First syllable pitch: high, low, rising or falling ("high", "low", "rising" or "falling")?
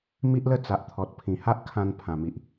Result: high